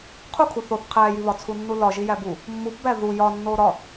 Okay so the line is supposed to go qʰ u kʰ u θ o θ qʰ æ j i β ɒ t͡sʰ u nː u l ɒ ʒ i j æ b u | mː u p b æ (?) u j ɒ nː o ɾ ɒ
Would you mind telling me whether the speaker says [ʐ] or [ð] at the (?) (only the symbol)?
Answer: ð